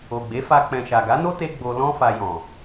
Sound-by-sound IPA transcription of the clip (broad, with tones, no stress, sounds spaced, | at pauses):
o˨ ɡ͡b e˨˦ f a˧ k͡p ɛ̃˨ ʃ a˨ ɡ a˨˦ n o˦ t e˧ ɡ͡b o˧ l ɔ̃˦ f a˧ j ɔ̃˨